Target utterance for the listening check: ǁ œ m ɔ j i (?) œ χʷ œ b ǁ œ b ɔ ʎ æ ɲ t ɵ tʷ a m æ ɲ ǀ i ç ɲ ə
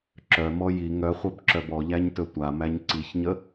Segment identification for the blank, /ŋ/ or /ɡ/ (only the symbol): ŋ